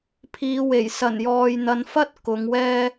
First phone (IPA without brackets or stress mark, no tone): pʰ